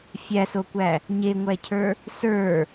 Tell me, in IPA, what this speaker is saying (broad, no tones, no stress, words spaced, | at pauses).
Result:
fʲæsokʷæ | ɲeŋʷæcʰə˞ | sə˞